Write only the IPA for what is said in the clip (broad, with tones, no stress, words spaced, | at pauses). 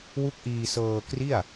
wu˦˥k̚ʔiː˧sɤː˧kri˥˩a̯